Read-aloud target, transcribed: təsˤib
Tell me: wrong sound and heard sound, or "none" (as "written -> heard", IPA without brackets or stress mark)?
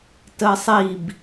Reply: none